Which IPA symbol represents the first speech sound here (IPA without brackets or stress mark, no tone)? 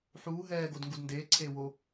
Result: ħ